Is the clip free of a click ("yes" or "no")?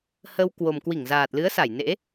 yes